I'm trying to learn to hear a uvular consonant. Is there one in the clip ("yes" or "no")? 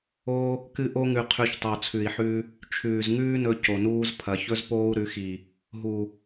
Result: yes